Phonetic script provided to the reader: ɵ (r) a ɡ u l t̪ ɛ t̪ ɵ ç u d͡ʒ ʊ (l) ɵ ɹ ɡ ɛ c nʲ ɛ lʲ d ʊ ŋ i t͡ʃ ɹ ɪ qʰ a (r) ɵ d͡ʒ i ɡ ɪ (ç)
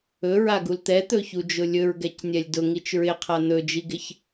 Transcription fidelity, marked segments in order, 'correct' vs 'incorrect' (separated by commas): incorrect, incorrect, incorrect, correct